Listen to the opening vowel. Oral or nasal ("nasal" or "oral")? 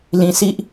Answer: nasal